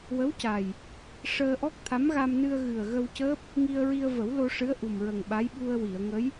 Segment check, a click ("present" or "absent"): absent